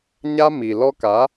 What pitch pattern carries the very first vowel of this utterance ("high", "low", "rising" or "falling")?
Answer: high